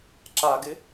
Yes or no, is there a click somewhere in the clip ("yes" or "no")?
yes